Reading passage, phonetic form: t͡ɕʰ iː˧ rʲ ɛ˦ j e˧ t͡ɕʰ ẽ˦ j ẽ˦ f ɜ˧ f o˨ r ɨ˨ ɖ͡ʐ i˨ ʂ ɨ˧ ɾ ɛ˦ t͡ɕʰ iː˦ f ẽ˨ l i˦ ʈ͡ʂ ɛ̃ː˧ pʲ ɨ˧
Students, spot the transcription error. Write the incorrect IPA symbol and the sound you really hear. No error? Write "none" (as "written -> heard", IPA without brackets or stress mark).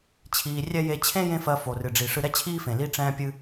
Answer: none